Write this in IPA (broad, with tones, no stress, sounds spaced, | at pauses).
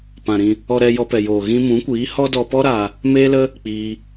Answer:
p ã˨ ɾ ĩ˧ | ɔ˧ ɾ ɛ˧ j ɔ˧ p ɛ˨ j oː˨ ɣ ĩ˧ m ũ˨˦ kʷ iː˨˦ h ɔ˦ d ɔ˧ p ɔ˦ ɾ aː˧ | m eː˦ l ə˦ | k͡p iː˧